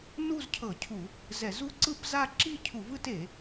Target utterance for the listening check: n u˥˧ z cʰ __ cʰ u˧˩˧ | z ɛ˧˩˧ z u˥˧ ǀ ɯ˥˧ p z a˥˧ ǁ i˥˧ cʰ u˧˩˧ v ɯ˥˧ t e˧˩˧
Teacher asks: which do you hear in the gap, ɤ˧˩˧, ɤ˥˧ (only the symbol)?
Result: ɤ˧˩˧